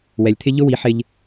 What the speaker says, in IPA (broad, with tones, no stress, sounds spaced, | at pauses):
w ɛ˨ lʲ t̪ʰ ɪ˦ ʎ ʊ˦ w i˨˦ ħ ɪ˦ ʎ